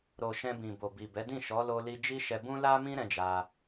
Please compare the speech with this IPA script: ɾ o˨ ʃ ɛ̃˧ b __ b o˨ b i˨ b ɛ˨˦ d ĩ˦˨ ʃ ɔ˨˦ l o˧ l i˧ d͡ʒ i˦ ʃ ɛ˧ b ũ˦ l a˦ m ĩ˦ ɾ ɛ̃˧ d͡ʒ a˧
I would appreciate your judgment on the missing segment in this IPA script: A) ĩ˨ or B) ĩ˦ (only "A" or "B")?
A